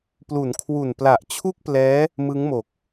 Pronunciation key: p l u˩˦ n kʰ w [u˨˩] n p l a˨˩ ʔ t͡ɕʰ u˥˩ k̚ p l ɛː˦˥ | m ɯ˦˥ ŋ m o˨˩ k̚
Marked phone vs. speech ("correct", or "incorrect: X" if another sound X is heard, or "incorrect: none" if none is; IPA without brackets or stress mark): correct